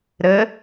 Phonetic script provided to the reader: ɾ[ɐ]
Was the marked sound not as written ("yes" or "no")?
yes